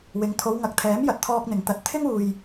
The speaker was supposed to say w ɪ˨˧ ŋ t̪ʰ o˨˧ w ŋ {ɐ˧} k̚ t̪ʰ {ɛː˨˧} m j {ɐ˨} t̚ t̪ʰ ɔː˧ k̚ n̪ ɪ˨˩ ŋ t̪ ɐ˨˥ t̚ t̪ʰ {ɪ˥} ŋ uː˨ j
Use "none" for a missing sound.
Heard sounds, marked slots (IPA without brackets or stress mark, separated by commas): ɐ˨, ɛː˨˥, ɐ˨, ɪ˥